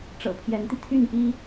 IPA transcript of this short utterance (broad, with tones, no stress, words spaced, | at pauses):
ʈ͡ʂɤ̰˨˩pʰjɛ˧˥nt̪i˧ t̪ʰy˥˩npi˥